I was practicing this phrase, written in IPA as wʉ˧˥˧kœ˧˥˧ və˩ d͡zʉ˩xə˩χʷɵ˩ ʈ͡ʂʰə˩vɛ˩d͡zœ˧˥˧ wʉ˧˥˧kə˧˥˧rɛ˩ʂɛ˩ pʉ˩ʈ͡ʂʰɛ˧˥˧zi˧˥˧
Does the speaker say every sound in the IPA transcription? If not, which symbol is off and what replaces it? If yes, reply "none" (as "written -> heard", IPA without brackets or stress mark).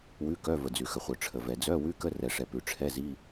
ɵ˩ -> œ˩